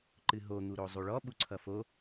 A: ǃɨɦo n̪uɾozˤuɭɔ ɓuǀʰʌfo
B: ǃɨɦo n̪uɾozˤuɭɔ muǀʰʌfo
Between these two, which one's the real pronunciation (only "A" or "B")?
A